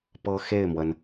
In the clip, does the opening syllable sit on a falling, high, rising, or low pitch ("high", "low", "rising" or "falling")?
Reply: high